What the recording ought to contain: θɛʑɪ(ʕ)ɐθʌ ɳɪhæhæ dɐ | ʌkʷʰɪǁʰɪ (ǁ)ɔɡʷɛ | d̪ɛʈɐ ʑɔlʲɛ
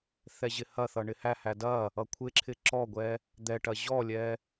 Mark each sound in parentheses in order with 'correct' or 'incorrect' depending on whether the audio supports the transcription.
incorrect: h, correct

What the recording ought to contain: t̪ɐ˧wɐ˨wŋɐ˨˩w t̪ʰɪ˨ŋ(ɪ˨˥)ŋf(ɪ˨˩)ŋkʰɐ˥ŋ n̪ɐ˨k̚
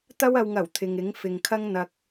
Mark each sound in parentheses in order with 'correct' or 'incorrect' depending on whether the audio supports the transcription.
correct, incorrect: ɪ˨

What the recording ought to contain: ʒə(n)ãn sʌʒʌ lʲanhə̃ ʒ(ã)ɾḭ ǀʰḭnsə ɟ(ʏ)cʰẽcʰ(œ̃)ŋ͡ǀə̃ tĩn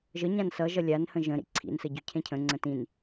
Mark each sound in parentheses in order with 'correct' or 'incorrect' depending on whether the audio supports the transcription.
incorrect: ɲ, incorrect: ə̃, correct, incorrect: ə̃

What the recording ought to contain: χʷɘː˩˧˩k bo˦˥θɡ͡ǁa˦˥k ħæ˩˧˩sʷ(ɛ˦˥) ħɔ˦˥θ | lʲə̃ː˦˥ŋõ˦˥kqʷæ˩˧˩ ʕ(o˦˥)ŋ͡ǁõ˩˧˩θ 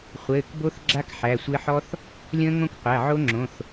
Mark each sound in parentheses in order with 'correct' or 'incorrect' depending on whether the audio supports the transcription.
incorrect: ɘ˦˥, correct

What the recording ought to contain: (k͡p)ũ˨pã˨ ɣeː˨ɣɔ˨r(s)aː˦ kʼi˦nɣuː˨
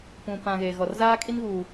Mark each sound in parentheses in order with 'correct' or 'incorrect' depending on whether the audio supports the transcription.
incorrect: p, incorrect: z

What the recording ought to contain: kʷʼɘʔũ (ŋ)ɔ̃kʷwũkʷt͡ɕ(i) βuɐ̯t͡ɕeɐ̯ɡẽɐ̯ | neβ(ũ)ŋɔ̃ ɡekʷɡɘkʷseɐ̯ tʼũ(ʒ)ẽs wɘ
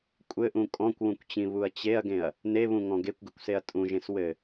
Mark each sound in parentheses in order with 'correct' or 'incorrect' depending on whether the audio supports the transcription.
incorrect: kʼ, incorrect: ĩ, correct, correct

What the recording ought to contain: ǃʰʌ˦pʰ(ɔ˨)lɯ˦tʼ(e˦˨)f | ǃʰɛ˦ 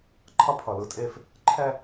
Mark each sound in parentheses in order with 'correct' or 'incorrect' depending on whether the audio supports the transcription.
incorrect: ʌ˨, correct

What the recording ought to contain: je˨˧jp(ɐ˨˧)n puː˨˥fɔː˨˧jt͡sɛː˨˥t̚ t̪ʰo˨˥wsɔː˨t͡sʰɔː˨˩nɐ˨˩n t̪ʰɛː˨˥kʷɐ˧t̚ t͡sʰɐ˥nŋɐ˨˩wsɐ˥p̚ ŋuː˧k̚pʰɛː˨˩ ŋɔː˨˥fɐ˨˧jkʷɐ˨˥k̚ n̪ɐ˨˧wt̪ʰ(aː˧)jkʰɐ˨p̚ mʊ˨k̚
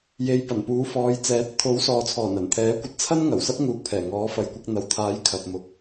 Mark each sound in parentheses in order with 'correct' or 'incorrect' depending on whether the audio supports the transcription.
incorrect: ɐ˨˩, incorrect: aː˨˥

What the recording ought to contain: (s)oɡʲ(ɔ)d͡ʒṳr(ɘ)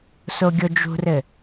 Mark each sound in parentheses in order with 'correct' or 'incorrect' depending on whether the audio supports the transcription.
correct, incorrect: o, correct

